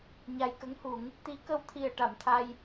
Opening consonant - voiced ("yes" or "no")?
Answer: yes